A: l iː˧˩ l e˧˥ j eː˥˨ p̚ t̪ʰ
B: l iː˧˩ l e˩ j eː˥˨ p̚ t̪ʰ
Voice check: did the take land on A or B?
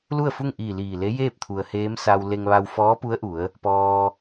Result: A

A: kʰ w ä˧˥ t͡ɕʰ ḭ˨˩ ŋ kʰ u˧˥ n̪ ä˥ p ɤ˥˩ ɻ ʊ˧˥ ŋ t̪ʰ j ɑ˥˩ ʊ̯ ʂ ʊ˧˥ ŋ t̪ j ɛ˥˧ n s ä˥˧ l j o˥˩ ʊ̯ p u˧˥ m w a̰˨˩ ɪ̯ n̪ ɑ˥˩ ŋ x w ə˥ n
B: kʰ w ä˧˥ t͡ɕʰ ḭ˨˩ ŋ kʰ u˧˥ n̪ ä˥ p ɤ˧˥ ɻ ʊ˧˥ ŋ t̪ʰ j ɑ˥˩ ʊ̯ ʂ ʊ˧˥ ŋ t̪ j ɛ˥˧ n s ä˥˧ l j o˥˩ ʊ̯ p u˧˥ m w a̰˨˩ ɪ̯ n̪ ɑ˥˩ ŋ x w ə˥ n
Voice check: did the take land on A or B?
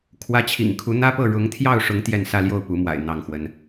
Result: A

